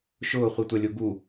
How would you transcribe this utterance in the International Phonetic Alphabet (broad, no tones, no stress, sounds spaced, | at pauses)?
ʃ ʊː χʷ i tʷ a lʲ o ɡ u